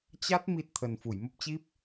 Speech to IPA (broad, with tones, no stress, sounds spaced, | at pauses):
t͡ɕ a˦˥ t̚ m i˦˥ t̚ t̪ʰ ə˨˩ n f u˧˩ j m ə˦˥ p̚ t͡ɕ i˦˥ p̚